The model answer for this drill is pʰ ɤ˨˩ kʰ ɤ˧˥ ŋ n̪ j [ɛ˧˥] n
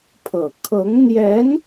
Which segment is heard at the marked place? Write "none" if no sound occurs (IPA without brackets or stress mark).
ɛ˧˥